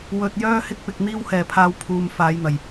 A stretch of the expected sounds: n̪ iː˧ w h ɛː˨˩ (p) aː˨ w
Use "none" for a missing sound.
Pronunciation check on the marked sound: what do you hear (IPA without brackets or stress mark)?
pʰ